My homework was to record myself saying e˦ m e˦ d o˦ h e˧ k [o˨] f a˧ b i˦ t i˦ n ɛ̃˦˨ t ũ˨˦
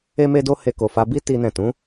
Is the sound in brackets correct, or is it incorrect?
correct